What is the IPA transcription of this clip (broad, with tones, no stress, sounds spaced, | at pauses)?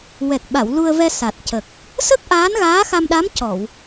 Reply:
w ɛ˨˩ k̚ ɓ a˨˩˨ w l u˧ ə̯ v ɛ˧ s a˨˩ t̚ c ə˨˩ k̚ | s ə˦˥ k̚ ʔ aː˧˥ n ɣ aː˧˥ x a˧ m ɗ a˧˥ m c ɔ˨˩˨ w